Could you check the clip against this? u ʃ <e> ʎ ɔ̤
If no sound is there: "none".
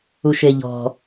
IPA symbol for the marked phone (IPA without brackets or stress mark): e